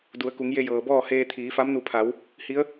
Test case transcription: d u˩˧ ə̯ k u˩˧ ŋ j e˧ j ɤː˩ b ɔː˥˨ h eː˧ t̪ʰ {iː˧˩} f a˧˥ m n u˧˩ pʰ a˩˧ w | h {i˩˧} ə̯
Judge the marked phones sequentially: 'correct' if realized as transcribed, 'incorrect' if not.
incorrect: iː˩˧, incorrect: i˧˥

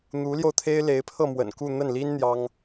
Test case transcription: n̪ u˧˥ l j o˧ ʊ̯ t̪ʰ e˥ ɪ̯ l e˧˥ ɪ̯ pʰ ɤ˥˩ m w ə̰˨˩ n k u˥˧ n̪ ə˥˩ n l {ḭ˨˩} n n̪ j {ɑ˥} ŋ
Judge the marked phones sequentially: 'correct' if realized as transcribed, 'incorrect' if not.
incorrect: i˥, correct

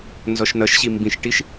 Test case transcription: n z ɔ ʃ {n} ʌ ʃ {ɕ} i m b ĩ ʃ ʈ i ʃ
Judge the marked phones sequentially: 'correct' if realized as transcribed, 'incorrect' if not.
correct, correct

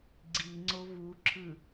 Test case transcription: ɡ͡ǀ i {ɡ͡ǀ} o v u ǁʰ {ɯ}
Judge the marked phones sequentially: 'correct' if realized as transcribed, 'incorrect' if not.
incorrect: ŋ͡ǀ, correct

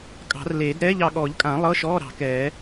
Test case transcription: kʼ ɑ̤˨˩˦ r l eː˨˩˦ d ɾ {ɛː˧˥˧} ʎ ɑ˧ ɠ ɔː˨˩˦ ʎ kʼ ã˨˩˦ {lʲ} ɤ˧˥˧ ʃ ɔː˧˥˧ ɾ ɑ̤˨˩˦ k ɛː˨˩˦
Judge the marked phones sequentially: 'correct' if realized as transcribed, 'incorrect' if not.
correct, incorrect: lˠ

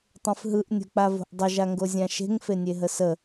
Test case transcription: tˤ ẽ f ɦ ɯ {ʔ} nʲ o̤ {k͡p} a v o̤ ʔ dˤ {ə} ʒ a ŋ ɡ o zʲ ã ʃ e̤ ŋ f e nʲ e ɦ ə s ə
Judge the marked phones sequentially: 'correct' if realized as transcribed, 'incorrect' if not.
correct, correct, correct

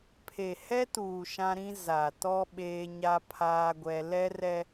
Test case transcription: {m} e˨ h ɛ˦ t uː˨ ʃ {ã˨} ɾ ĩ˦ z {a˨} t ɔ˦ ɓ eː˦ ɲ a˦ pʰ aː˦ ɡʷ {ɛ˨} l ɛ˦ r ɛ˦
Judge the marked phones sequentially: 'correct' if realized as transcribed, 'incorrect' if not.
incorrect: pʰ, incorrect: ã˦, correct, incorrect: ɛ˦

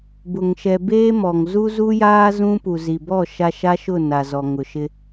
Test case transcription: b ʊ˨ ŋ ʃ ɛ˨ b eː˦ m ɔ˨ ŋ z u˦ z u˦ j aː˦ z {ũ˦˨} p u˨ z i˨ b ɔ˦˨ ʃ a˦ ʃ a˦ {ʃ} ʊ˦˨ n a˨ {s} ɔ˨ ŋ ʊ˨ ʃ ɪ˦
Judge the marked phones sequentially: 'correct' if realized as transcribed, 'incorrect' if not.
incorrect: ũ˦, correct, incorrect: z

